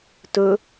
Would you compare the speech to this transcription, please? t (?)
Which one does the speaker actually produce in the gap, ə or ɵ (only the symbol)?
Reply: ɵ